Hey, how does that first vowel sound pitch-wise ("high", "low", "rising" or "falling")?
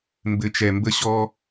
low